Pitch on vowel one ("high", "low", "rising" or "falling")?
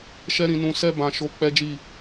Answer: high